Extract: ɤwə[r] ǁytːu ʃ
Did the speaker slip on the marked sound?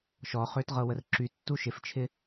no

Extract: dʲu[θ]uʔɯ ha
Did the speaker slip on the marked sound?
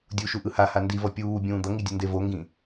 yes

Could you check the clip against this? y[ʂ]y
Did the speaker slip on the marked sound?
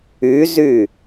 yes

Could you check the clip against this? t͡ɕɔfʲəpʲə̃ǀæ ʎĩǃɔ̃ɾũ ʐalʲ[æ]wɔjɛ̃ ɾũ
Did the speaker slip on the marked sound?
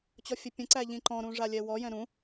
yes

